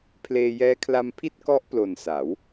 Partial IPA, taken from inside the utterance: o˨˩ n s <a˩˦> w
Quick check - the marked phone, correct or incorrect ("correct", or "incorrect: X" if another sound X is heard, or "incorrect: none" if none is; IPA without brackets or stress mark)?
correct